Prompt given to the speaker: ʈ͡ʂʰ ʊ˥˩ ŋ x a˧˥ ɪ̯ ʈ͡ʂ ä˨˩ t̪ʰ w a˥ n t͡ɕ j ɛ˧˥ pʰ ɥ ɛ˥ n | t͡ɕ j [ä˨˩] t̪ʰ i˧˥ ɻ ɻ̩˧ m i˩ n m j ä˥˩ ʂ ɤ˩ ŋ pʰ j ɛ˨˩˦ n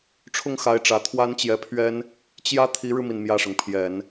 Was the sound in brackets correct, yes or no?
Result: no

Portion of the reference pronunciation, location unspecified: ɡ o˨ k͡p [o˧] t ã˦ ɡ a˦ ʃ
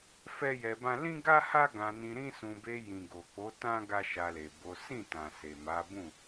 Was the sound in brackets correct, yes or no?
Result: no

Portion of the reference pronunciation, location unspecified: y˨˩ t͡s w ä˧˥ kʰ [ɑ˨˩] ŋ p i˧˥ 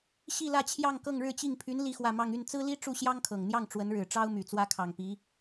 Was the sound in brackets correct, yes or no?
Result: yes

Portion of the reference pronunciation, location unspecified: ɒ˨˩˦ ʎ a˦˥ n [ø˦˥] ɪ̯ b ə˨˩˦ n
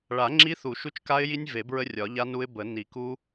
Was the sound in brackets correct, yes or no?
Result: no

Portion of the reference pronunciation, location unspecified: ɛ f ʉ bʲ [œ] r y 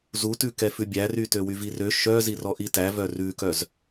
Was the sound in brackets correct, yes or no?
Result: no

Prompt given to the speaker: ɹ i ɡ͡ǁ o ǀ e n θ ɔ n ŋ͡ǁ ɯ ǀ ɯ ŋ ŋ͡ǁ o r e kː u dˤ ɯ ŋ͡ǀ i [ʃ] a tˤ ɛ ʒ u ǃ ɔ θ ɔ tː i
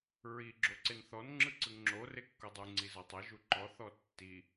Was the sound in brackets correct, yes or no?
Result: no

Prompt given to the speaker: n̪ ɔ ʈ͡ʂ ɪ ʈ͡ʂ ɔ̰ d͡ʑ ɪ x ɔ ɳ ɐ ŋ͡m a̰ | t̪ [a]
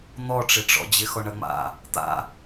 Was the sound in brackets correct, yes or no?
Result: no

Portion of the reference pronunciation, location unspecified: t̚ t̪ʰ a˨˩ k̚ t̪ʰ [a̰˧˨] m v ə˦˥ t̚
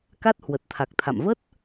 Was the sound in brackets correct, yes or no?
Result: yes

